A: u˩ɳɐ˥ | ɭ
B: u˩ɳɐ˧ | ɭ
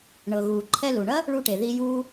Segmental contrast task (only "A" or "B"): A